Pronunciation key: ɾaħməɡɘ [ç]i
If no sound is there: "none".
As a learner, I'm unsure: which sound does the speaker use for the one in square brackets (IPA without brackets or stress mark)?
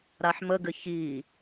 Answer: ç